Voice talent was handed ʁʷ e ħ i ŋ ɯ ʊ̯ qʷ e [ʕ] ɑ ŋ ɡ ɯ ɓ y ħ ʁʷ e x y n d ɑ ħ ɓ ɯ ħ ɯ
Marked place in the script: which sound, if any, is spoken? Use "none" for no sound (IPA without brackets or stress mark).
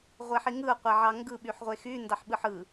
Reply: ʕ